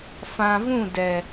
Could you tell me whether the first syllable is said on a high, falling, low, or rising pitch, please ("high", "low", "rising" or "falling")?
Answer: low